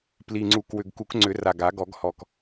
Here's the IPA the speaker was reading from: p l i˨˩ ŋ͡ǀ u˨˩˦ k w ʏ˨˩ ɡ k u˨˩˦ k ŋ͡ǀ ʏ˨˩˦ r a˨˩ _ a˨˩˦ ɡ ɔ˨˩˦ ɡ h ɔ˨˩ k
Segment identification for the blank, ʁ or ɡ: ɡ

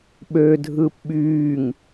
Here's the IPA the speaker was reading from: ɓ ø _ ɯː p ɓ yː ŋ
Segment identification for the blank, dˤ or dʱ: dʱ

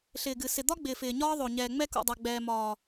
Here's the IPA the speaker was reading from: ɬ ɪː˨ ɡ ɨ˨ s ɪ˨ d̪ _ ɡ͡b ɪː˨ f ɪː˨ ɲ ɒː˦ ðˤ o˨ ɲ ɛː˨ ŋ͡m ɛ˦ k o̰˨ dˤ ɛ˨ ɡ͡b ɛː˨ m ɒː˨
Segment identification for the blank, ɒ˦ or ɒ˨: ɒ˦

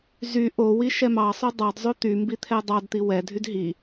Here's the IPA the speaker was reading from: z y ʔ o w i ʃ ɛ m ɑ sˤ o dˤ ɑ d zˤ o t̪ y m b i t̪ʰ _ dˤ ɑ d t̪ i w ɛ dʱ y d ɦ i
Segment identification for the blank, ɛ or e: ɛ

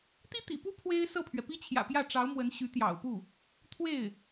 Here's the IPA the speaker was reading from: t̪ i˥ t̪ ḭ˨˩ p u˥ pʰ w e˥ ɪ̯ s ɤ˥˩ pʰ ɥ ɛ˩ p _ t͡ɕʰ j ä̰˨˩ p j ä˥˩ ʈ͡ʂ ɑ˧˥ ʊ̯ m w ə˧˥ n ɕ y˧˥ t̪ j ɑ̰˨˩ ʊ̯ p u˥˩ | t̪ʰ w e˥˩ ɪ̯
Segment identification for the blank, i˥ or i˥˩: i˥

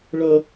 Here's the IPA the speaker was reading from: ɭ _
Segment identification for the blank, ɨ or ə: ə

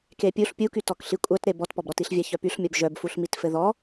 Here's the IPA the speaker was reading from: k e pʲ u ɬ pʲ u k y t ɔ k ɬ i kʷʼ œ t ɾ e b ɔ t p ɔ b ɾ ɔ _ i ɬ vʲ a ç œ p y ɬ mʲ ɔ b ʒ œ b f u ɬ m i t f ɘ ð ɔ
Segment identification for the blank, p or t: t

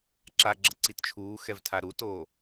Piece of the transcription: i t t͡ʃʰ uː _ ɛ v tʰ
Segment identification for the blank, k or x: x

